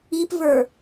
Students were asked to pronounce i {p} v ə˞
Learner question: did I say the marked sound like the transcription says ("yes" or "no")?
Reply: yes